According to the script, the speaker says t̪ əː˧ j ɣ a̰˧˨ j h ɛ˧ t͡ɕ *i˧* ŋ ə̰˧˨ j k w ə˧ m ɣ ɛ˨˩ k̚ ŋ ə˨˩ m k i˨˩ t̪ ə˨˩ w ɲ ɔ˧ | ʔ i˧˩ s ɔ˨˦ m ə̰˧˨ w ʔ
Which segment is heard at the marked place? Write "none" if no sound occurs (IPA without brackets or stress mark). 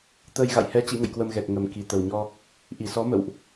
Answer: ḭ˧˥